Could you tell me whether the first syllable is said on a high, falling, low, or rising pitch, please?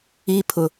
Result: high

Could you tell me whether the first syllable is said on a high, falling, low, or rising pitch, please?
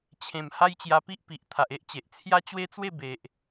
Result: low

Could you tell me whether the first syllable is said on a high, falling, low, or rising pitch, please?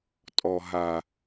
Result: low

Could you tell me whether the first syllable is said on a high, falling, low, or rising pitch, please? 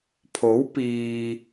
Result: rising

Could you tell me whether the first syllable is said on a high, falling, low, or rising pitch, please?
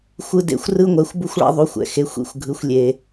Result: high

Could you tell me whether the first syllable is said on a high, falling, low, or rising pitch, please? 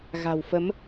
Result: low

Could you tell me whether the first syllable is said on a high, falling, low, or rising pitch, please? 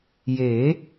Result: rising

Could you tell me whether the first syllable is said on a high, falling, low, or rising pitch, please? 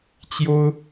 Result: high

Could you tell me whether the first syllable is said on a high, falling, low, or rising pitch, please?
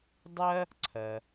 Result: high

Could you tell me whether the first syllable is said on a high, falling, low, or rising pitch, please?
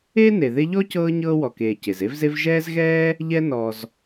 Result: high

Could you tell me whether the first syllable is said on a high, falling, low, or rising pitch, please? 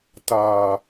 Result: low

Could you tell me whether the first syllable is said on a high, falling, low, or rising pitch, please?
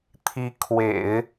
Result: rising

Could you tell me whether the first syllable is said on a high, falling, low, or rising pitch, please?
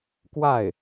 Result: falling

